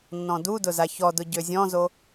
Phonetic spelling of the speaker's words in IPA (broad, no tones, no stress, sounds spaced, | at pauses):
nː ɔ̃ d u d ʊ z a ç ɔ d ʊ ɟ ø zʲ ɔ̃ z o